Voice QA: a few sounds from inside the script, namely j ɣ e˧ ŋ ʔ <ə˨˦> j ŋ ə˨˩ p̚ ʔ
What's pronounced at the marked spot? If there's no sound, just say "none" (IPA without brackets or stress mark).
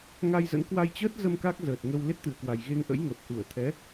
ə̰˧˥